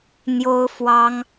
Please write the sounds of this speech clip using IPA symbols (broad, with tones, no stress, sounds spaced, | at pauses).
n̪ j o˥ ʊ̯ f w ɑ˥ ŋ